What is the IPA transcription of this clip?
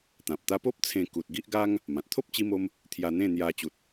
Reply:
t̪ ã˨ p̚ t̪ a˦ p o˦ p̚ t͡sʰ ẽ˧ k u˨ t̚ ɡ i˦ ʔ ɡ a˦ ŋ | m ã˨ t̚ t̪ʰ o˦ p̚ t͡ɕ i˧ m o˧ m | t̪ʰ j a˧ n̪ ẽ˥˧ n̪ j a˧ t͡ɕ u˨ t̚

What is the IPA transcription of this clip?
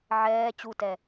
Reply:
ʕ ɛː t͡ɕ u t ɛ

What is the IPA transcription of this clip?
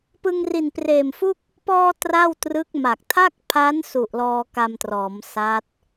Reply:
p ɯ˧ ŋ r i˨˩ n p r eː˨˩ m f u˥˩ k̚ | p ɔː˧ t r a˥˩ w t r ɯ˦˥ k̚ m a˨˩ k̚ tʰ a˥˩ k̚ pʰ a˦˥ n s u˨˩ ʔ l ɔː˧ k a˧ m t r ɔː˩˦ m s a˦˥ t̚

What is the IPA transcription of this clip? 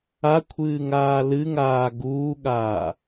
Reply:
a kʷʰ ɨː ŋ aː l ɨ ŋ aː ɡ uː ɠ aː

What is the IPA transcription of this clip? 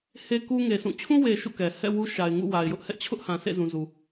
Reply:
h e˦ k u˦ ŋ e˨ sʰ ũ˦˨ t͡ɕʰ ũ˦ w e˨ ʃ ṵ˦˨ k ɛ˨ h ɛ̰˦˨ w u˦ ʃ a˨ ɪ̯ ŋ ṵ˦˨ w a˨ ɪ̯ j ʊ˦ ʔ h ɛ˦ ʔ t͡ɕʰ ʊ˦ ʔ h ã˨ sʰ ḛ˦˨ z ũ˨ z u˨

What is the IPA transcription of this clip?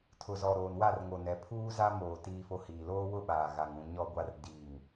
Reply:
tʰ ʊ˨ z ɔ˨ ɾ oː˨ n w a˦˨ r ŋ o˨ n ɛ˨˦ pʰ uː˦ z a˦ m oː˨ t iː˦ f o˦ h iː˨ l oː˦ w ʊ˦ ɓ aː˨ ɣ a˨ ŋ ũ˨ ɲ ɔ˦ ɡʷ a˦ r d iː˦˨ ŋ

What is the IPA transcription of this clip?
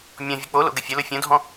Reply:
mʲ ɔ̃ vʲ ʊ k͡p o l o̰ ɡ ə fʲ ʊ l ʊ fʲ õ dʱ ɔ̃

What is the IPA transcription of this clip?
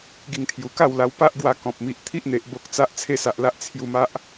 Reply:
ɡ i˧ ŋ t̪ʰ j u˨˩ k a˥˧ w l a˧ w p a˦ ʔ ɡ w a˧ k ɔ̃˨ p̚ m i˨ ʔ t̪ʰ i˦ ʔ n̪ e˨ ʔ b o˦ k̚ t͡s a˦ ʔ t͡sʰ e˦ s a˨ ʔ l a˦ ʔ t͡sʰ j u˧ m a˦ ʔ

